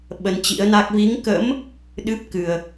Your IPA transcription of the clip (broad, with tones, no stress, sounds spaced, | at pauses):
ɓ ə˧ n t͡ɕ ḭ˧˥ ə̯ n a˦˥ k̚ v i˨˦ ŋ k ə̰˧˥ m | ɗ ɨ˦˥ p̚ k ɨ˨˩ ə̯